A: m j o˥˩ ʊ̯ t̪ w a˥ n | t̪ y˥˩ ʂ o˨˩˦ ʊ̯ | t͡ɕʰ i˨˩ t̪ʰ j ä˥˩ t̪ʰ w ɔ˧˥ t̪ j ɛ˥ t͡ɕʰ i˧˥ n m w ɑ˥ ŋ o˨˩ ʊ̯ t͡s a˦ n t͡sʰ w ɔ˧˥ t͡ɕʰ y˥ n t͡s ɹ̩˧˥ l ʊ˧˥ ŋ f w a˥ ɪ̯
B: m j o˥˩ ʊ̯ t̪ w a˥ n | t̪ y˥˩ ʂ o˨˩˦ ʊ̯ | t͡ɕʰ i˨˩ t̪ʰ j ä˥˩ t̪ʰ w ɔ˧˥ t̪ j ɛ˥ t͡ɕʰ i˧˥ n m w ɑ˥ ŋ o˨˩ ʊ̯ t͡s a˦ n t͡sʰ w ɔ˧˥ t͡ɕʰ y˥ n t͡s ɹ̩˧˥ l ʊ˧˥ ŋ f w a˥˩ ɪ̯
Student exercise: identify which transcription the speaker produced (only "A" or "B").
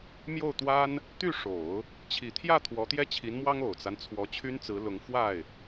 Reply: B